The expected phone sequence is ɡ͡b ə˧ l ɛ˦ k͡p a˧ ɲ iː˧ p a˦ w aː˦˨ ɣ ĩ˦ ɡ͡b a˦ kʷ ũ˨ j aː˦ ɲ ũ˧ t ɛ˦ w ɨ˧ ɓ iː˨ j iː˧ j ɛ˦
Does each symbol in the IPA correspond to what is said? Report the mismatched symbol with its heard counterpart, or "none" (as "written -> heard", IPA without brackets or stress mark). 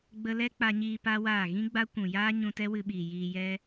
none